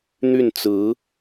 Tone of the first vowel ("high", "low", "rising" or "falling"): falling